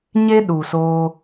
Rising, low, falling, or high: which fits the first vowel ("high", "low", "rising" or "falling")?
high